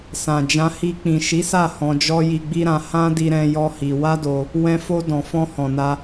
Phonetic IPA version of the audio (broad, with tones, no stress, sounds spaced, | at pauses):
s ã˨ d͡ʒ ã˧ h i˧ k͡p ĩ˨ ʃ i˨˦ s a˦˨ h ɔ̃˧ d͡ʒ ɔ˦ j i˧ ɡ͡b i˦ ɾ ã˧ h ã˦ d i˧ ɾ ɛ̃˧ j ɔ˦ h i˧ w a˦ d o˧ | w ɛ̃˧ f o˧ d ɔ̃˨ f ɔ̃˧ h ɔ̃˨ n a˧